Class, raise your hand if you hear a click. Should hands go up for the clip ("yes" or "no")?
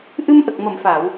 no